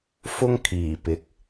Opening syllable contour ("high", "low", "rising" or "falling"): high